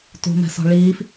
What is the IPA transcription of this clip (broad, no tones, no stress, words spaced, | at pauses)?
tṳmɛ̤sɔ̤ ɭiːf